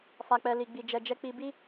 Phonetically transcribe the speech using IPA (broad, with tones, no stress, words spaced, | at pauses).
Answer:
fa˨k͡pɛ˨ li˨ɡ͡bi˨d͡ʒɛ˨ d͡ʒɛ˧k͡pi˧bi˦